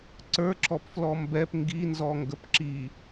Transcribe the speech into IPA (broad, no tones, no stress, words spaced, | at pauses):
ǀə˞ǁɔpflɔ mbɛp ŋɡinzɔŋɡəp ǁi